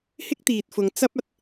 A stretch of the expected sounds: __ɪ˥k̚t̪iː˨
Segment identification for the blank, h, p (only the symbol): h